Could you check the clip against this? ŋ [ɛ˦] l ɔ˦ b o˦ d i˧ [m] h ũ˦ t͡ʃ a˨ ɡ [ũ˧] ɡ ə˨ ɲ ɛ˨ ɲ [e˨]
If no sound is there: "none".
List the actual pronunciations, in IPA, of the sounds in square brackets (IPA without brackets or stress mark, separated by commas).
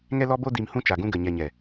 ɛ˦, m, ũ˧, ɛ˨